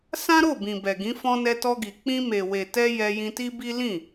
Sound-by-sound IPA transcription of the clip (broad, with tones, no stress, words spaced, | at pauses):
sã˦ɾo˦˨ bĩ˨bɛ˨ɡĩ˨˦ fɔ̃˧nɛ˧tɔ˧ɡi˨ k͡pĩ˧me˨ we˨tɛ˧ jɛ˧jĩ˧ti˦bi˦ lĩ˦˨